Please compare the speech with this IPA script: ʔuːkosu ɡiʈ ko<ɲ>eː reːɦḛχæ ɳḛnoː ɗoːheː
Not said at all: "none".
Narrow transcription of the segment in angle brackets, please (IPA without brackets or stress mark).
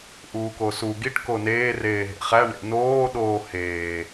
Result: n